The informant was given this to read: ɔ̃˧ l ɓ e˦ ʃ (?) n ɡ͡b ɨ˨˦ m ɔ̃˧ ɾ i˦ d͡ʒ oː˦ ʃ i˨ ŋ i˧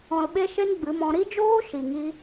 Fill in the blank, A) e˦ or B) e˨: A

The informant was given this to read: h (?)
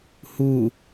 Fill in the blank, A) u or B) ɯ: A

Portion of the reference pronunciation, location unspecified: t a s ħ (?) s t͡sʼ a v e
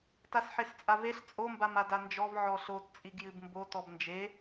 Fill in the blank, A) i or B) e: B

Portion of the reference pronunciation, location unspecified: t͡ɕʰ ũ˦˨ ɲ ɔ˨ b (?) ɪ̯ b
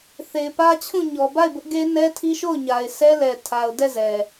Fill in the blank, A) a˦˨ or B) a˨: A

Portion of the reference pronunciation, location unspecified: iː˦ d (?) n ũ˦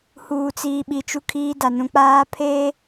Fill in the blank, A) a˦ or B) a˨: B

